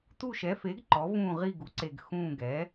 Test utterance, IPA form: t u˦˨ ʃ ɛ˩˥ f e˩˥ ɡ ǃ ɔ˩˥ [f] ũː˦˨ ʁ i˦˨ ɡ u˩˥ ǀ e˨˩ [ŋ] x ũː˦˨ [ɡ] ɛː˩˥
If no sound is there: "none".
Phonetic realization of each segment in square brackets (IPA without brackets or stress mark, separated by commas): v, ɡ, ɡ